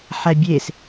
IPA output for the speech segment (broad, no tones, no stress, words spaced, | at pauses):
ħæbʲes